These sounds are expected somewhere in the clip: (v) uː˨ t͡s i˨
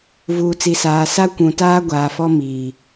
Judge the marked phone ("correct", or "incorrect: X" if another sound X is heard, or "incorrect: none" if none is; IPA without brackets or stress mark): correct